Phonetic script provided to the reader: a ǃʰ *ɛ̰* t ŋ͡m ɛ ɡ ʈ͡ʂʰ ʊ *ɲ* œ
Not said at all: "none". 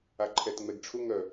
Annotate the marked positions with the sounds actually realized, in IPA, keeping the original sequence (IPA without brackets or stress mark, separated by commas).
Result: ɛ, ŋ